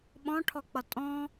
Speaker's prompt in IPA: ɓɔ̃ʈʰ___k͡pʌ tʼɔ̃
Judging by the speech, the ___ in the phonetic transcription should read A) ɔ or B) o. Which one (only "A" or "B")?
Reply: A